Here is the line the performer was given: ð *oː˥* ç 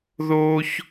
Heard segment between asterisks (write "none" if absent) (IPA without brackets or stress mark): oː˥